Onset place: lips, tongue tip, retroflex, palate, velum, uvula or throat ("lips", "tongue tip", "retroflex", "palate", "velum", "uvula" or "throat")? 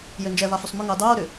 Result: palate